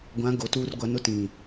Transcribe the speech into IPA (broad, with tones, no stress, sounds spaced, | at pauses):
ɡʷ ã˨˦ ɡ o˨ t uː˦ r ɡʷ a˨˦ n ʊ˦ t ĩ˨